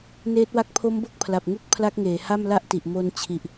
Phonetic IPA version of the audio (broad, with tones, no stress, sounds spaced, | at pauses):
n eː˦˥ t̚ w a˦˥ k̚ pʰ o˦˥ m b o˦˥ k̚ pʰ l a˨˩ p̚ ŋ u˥˩ k̚ pʰ l a˦˥ k̚ ŋ eː˩˦ h a˥˩ m l a˥˩ ʔ t i˨˩ ʔ m o˧ n t͡ɕʰ i˨˩ ʔ